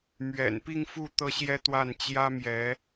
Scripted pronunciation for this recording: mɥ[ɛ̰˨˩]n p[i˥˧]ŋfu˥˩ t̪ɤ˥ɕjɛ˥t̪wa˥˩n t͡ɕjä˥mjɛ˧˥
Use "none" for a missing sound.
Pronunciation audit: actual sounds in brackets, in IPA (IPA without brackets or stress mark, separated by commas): ɛ̰˨˩, i˥˧